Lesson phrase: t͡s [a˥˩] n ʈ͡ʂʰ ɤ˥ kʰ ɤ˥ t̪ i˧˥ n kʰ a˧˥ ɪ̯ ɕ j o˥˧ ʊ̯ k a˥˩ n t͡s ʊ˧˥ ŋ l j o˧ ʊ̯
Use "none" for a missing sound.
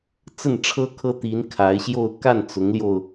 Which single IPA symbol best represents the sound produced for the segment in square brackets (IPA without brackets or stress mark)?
ə˥˩